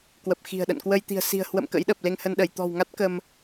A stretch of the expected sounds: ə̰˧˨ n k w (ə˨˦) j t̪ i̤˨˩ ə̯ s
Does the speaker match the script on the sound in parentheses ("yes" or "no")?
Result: no